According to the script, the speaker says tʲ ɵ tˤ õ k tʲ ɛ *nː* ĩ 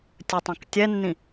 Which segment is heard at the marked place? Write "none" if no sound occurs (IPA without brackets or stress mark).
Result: nː